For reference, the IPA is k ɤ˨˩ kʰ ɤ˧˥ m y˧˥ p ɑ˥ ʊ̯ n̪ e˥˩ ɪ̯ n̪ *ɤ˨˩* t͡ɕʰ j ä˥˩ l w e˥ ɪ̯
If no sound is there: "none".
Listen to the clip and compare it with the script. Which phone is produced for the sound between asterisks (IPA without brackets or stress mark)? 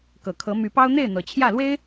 ɤ˨˩